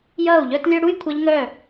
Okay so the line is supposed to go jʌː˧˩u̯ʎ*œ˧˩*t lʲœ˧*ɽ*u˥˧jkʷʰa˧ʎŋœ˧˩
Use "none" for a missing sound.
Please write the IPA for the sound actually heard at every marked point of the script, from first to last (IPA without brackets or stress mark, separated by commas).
œ˥˧, ɽ